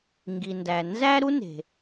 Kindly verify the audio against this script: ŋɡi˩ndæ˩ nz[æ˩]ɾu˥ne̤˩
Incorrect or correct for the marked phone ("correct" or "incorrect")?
incorrect